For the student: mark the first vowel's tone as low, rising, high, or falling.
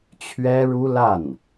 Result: high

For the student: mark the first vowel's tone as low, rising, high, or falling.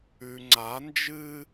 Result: low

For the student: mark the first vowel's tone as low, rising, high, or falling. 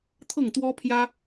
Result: falling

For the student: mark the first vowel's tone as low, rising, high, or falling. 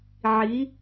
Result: rising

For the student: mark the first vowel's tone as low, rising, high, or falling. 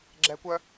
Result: high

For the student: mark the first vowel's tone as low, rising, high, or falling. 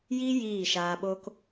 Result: high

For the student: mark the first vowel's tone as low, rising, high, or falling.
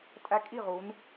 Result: high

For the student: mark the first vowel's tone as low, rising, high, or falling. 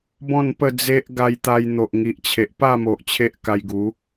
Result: falling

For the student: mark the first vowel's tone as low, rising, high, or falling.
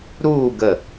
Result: falling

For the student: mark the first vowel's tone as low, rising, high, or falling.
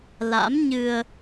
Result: rising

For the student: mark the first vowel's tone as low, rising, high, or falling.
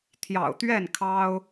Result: low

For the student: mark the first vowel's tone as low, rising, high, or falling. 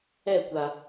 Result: falling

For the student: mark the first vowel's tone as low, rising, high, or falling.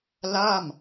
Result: falling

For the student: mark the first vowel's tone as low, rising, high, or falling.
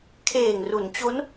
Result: low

